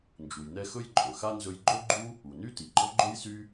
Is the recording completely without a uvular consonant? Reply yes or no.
yes